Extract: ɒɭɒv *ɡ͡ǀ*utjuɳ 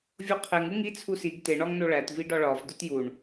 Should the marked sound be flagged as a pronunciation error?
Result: yes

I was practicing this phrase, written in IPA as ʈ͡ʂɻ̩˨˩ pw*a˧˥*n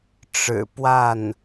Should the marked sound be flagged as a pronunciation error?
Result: yes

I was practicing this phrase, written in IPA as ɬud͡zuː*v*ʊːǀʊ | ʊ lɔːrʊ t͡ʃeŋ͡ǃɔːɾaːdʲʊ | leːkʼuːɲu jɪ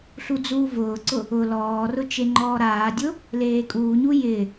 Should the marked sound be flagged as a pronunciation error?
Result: no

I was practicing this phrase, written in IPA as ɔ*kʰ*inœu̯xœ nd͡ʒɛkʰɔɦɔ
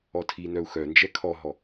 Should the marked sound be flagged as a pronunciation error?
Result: yes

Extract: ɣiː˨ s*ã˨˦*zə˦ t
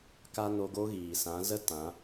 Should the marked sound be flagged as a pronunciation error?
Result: no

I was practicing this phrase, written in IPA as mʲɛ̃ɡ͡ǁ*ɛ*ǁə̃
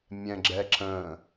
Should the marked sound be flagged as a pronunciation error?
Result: no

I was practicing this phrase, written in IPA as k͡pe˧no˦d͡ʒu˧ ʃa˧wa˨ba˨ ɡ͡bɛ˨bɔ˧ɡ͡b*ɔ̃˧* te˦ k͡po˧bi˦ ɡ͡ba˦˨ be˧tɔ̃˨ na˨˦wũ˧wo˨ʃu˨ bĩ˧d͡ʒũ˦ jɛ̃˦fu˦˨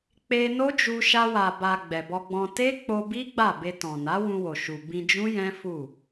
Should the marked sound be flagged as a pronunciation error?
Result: no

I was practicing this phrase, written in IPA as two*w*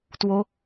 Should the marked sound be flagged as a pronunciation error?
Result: yes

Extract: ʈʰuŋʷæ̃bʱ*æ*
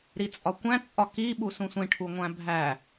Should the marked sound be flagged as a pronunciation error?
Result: no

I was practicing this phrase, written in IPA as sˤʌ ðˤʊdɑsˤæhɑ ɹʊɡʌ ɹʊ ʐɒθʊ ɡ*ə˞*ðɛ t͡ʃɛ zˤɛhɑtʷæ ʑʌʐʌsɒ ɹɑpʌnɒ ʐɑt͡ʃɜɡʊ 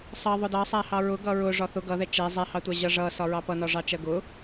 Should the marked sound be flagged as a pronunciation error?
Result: yes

